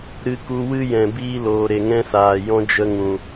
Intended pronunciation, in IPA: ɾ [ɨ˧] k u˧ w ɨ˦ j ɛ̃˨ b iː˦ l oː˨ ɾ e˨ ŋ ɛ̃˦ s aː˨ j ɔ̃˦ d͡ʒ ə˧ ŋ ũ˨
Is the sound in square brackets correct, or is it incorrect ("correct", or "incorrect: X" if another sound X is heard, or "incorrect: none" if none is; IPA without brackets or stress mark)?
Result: correct